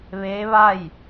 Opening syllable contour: rising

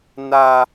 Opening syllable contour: high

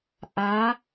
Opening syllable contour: rising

